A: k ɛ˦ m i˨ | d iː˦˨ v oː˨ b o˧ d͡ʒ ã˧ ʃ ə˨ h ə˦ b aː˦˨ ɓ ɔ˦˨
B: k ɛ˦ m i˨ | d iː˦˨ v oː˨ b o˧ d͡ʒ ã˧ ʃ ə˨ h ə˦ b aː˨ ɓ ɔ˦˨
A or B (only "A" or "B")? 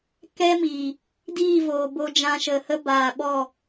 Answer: B